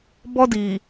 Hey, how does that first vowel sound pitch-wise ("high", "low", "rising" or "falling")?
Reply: high